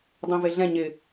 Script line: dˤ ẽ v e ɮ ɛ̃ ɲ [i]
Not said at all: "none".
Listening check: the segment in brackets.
ɪ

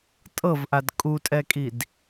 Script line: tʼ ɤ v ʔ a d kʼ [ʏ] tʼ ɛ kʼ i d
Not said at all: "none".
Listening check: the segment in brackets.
u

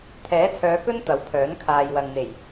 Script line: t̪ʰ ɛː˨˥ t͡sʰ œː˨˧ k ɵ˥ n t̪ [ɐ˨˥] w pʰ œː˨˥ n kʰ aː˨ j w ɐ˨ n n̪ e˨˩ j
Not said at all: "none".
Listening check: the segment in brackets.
ɐ˨˥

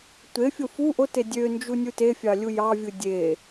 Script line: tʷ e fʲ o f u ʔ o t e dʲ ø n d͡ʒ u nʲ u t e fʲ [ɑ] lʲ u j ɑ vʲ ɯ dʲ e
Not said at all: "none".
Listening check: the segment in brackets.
ɑ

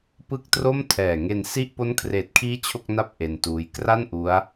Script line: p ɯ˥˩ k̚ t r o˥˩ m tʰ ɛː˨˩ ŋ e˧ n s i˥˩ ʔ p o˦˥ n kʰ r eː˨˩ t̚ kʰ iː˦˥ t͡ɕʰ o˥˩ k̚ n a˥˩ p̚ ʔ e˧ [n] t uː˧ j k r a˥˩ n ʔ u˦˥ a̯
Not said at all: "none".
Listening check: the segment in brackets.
n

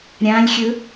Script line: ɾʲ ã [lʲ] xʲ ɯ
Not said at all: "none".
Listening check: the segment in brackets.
lʲ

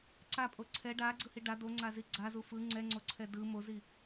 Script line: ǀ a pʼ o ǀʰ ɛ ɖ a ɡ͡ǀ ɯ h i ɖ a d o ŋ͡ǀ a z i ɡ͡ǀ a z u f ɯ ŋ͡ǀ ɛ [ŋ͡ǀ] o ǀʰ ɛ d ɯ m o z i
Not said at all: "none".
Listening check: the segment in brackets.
ŋ͡ǀ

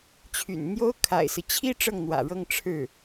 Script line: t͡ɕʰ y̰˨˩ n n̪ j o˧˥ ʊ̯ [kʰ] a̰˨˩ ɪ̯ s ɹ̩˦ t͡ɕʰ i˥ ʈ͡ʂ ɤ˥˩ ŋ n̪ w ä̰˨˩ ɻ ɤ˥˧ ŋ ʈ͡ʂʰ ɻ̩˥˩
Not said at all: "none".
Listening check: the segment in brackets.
kʰ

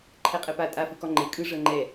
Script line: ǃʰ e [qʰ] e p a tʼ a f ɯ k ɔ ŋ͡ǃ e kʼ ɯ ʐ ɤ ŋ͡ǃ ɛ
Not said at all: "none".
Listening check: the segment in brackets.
qʼ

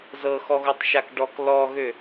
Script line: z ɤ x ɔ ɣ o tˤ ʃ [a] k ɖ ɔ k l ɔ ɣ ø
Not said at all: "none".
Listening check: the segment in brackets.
a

